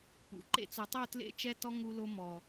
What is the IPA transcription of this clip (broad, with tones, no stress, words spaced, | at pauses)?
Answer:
pṵ˨ ǃḛ˧t͡su˨tˤu˦˨ tlḛ˦˨t͡ʃɛ˦tɔ˦ ŋu˧lo˧ mɔ˨